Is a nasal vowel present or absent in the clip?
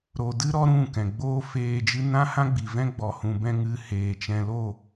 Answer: present